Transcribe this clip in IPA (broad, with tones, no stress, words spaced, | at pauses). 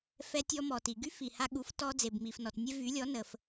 fɛ˧tʲɔ˧ mɔ˩ti˩ɡy˥ fi˩ha˧ɠu˩˥f tɔ˧ d͡ze˩bmi˩fnɔ˩tnʲe˧ vy˩˥lʲɔ˩˥ nə˩f